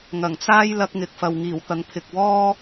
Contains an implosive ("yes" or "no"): no